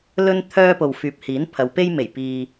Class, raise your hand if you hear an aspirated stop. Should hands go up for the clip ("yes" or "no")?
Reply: yes